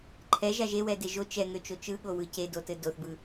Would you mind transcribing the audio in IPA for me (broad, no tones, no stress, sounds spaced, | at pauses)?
ǃʰ ɛ ʒ a ʒ e w ɛ d e ʒ o t͡ʃ ɛ ŋ ø t͡ʃ o t͡ʃ ɯ ɠ o w ɯ c e d o t ɘ d o θ b ɯ